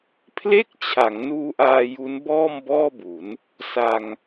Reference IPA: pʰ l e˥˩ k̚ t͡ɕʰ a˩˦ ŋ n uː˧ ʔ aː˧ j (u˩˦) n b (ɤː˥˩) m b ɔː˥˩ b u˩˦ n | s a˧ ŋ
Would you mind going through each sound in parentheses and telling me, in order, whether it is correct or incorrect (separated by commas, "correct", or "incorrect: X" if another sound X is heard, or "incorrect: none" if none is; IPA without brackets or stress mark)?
incorrect: u˦˥, incorrect: ɔː˥˩